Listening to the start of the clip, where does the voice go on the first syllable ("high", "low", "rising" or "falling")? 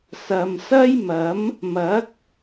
low